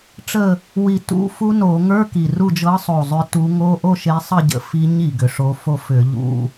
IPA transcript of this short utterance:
ʈ͡ʂə˦˨ | wi˧˩˧tṵ˧˥˧ fu˦˥no˧˩˧ ŋə˞˧˥˧ki˨˩ru˦˨ d͡ʒɤ˨˦sˤo˨˩ zˤʏ˨˦tu˨˦ ŋo˧˥˧ ʔo˦˨ʃe˨˦ sˤə˦˨ɟə̰˨˩ fi˨˦ɲ i˨˩ɡʏ˨˩ʂo˨˦fo˦˨ fʏ˧˩˧ʎṵ˧˥˧

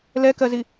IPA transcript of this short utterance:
lɛkɜzi

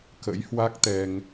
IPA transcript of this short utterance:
kə̰˧˥jhwa˦˥k̚ t̪ɛ˧ŋ

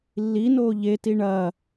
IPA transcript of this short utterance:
lːinoː ʎeti ɳɐː

